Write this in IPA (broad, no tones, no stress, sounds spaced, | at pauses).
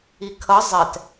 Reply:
i kʰ ʌ zˤ ɛ t